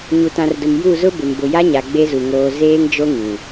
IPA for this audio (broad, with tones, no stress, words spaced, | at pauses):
ɲu˨tã˨rdʊ˨m ju˦˨zʊ˦bɪ˨m bʊ˨ja˦ɲa˨ ɡ͡be˦zu˨ ŋoː˨ zeː˦ŋd͡ʒo˦ ŋĩ˨